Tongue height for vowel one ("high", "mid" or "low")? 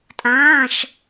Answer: low